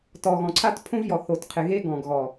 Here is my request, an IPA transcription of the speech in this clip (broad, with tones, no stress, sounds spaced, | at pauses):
t ɔ˨ ɣ ɔ̃˨ ǀʰ a˦ t pʰ õ˦ v j ɔ˨ θ o˨ t qʰ ɪ˨ ɣ e˦ ɡ ɔ̃˨ ɡ ɣ ɔ˨